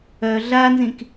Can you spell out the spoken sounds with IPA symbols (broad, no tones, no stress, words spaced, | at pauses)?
œ ɮanzĩk